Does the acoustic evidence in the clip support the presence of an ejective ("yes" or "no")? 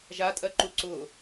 yes